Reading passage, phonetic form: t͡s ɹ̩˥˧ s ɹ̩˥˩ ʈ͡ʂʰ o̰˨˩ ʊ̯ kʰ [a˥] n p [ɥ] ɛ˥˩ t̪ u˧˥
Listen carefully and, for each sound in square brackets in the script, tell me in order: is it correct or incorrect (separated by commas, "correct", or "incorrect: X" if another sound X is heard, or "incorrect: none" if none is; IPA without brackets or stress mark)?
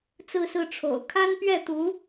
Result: correct, correct